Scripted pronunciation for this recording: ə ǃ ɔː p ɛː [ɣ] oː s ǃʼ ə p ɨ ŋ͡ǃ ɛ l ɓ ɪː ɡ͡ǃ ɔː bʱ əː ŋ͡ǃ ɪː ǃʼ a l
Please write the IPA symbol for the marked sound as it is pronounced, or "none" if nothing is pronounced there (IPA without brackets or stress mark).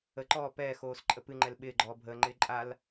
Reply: x